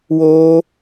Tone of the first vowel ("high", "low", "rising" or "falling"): high